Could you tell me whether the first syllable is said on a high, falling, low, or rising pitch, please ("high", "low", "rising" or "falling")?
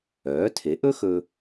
rising